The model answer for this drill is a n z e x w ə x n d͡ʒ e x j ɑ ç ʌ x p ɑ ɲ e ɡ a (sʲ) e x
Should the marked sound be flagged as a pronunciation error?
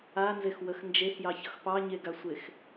yes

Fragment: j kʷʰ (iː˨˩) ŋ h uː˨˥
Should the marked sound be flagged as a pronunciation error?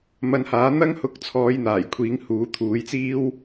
yes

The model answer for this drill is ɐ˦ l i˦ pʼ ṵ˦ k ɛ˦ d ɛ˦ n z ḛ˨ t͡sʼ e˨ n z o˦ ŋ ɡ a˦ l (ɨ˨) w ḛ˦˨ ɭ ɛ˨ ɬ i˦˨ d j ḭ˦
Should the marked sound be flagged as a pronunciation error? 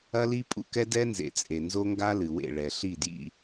no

